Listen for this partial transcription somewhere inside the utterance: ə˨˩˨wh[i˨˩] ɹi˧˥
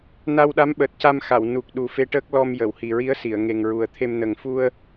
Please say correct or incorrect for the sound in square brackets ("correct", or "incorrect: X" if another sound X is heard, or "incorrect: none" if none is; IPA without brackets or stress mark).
correct